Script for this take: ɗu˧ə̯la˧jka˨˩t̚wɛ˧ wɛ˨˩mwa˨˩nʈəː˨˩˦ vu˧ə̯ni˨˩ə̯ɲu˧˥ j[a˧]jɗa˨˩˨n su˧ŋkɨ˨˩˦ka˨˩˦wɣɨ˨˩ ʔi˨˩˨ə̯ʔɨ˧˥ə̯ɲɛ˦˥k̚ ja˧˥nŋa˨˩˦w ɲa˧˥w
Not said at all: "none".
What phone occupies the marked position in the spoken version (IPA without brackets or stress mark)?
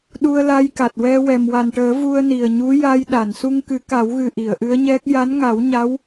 a˧